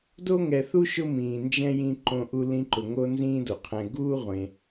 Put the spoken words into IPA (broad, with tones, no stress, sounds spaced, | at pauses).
d o˥ ŋ ɛ˨ θ u˥ ʃ ʊ˦ m ĩː˩ n d͡ʒ ɛ̃˥ j ĩ˥ ǃ õ˦ ʔ u˦ l ĩ˦ ǃ ʊ˨ ŋ o˥ n z ĩː˥ d o˩ qʰ ɛ̃˨ ɡ uː˥ ʁʷ ẽ˨